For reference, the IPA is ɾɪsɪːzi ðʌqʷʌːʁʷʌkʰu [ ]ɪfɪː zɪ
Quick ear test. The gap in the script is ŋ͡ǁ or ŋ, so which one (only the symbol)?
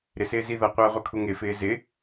ŋ